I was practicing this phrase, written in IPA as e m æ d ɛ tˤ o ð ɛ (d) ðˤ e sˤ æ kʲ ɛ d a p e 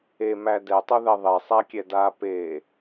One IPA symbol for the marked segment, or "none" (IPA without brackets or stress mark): none